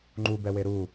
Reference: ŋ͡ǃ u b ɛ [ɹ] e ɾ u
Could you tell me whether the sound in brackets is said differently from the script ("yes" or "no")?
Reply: yes